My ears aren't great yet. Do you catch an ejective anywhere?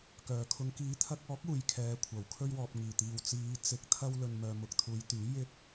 no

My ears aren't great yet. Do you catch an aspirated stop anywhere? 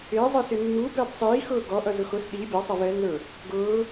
no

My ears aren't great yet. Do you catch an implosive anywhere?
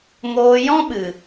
yes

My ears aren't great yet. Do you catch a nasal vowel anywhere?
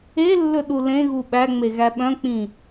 yes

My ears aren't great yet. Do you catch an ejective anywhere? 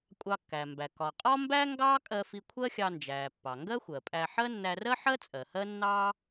yes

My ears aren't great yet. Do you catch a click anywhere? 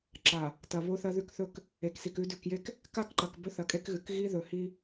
yes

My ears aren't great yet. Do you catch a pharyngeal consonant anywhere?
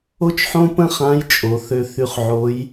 yes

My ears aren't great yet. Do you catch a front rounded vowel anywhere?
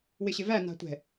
no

